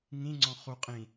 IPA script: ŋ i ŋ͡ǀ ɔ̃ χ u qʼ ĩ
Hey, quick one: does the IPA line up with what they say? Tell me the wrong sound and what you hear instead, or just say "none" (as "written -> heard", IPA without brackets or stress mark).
i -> ĩ